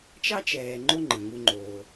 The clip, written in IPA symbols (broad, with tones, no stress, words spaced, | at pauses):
t͡ʃɑ˥t͡ʃɛː˨ ŋ͡ǃo˦ŋ͡ǃə̃˩ŋu˨ŋ͡ǃoː˩